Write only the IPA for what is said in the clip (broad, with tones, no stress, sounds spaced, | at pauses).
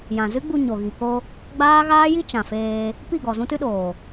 j ã˨ z ɨ˦ ɡ͡b u˧ ɲ o˨ ɣ i˨ k o˧ | ɡ͡b aː˦ ɣ aː˦ j i˦ t͡ʃ ã˨ f eː˧ | p i˦˨ ɡ ɔ˨ z ũ˦ t ɨ˦ ɗ oː˨